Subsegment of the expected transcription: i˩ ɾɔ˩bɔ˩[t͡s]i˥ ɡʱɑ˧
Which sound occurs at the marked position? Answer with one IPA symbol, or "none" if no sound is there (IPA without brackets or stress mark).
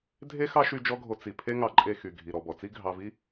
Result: t͡s